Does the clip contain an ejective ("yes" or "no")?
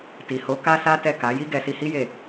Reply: no